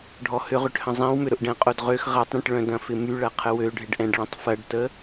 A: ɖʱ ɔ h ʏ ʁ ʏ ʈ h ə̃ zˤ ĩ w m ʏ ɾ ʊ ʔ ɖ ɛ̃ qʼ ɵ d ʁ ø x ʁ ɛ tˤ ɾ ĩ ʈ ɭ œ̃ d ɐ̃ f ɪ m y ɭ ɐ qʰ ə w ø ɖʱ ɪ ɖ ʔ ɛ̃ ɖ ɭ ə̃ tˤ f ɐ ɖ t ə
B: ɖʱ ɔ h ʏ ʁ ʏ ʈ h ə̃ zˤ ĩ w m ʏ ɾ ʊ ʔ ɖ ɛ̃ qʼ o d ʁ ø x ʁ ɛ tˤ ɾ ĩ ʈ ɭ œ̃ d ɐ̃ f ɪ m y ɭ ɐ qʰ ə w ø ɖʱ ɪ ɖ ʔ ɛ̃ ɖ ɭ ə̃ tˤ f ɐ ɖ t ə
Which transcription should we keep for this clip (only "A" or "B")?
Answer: B